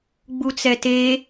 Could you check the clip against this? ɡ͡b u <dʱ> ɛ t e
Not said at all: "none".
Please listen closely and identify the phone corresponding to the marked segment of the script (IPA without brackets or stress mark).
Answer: t͡s